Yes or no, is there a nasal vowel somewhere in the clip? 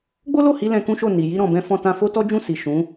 yes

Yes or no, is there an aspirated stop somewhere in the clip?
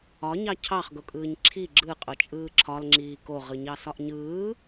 yes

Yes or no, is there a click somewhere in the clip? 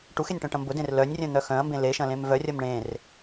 no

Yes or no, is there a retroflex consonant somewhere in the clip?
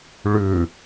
yes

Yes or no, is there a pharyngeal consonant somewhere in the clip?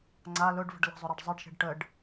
no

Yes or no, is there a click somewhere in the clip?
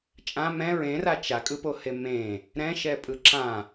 yes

